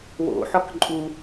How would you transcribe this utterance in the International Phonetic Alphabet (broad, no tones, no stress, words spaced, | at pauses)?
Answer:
wo̰ħɔk ǃʼu